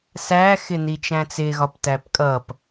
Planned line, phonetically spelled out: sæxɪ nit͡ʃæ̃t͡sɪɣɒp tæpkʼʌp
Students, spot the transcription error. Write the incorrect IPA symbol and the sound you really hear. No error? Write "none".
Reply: none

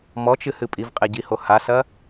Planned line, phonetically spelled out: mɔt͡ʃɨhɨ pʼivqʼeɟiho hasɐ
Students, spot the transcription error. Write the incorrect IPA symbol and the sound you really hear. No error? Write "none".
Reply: none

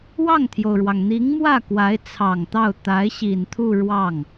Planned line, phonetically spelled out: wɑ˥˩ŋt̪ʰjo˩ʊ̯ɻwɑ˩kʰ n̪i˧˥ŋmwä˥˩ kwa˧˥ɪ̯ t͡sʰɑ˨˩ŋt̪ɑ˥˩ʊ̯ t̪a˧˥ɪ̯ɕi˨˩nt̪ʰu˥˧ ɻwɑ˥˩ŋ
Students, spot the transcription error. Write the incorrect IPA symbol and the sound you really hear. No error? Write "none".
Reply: kʰ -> ŋ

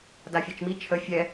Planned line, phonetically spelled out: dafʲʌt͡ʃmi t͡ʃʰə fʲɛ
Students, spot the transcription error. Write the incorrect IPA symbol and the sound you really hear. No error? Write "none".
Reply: ʌ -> a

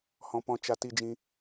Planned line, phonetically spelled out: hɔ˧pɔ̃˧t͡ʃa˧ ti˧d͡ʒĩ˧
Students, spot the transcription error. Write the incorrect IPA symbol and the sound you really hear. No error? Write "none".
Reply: ɔ˧ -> ɔ̃˧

